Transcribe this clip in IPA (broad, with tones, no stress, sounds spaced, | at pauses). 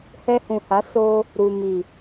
h ɛ˧ h ũ˨ h a˨˦ s o˦ | ɾ u˨ m i˨